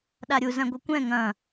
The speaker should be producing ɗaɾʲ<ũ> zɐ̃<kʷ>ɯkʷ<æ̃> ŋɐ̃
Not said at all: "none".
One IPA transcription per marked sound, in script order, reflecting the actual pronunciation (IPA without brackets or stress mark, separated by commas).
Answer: u, ɡʷ, ɛ̃